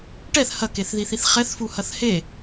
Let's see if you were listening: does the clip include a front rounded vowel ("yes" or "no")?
no